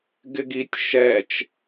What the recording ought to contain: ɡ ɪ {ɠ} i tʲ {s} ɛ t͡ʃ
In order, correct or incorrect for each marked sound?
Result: incorrect, incorrect

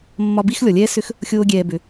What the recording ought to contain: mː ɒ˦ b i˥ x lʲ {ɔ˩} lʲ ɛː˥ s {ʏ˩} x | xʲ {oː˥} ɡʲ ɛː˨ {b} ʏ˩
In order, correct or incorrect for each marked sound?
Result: correct, incorrect, incorrect, correct

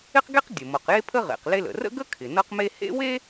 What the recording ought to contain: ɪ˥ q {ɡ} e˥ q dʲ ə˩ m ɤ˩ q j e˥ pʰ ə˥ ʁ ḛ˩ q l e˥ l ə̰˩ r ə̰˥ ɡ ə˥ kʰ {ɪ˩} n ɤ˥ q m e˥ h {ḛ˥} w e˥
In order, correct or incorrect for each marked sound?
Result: correct, correct, correct

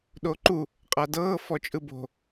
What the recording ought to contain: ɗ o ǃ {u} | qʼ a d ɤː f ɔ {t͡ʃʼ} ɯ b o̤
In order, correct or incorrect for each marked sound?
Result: correct, correct

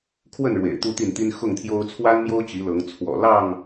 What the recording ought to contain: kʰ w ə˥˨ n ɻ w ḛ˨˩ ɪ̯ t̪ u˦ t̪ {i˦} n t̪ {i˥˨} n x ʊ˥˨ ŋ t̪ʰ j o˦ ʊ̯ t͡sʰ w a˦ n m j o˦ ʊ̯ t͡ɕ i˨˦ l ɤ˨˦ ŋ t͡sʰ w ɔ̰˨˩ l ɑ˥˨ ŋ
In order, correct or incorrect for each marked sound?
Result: incorrect, incorrect

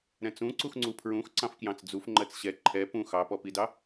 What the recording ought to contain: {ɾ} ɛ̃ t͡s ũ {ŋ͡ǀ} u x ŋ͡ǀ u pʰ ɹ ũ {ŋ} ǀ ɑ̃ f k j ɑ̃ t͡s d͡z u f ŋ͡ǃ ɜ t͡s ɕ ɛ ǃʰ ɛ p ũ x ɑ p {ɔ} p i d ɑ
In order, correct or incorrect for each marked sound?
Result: correct, incorrect, incorrect, correct

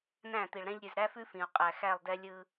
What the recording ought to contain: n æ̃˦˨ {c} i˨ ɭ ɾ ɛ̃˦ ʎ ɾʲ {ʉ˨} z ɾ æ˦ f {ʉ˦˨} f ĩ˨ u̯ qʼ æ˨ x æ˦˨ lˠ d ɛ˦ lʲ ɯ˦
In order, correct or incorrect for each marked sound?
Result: incorrect, correct, incorrect

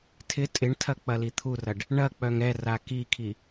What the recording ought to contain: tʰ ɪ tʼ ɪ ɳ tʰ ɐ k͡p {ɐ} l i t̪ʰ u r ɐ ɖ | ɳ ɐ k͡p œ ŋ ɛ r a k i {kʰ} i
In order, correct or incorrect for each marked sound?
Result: correct, correct

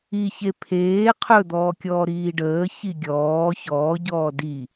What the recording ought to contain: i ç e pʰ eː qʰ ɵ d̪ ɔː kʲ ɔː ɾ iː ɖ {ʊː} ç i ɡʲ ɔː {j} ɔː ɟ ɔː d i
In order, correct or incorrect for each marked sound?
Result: incorrect, incorrect

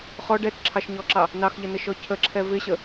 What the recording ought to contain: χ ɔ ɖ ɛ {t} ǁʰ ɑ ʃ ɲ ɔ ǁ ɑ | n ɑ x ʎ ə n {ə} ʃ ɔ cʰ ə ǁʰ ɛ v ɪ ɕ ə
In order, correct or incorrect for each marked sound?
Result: correct, correct

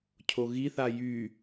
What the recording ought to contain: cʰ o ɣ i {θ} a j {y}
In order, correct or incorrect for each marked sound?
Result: correct, correct

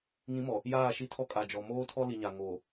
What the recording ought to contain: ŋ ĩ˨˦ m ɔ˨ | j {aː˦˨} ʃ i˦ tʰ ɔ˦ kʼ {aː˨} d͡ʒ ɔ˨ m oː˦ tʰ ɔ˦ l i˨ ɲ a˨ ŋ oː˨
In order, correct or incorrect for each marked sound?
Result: correct, incorrect

